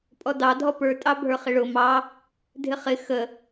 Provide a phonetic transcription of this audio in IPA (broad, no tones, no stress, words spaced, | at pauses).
pʼɔdɑdʱɔ pə˞ tʼɑbʱə˞χɪɭʊ mɑ | dʱɪχɪ xə